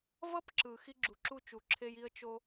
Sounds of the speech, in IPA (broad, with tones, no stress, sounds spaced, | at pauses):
v ʌ˥ p ǁ ɯ˩ x i˥ ɡ͡ǁ u˩ ǁ u˥ t͡ʃ u˩ ǁʰ e˥ j i˥ ə̯ t͡ʃ o˥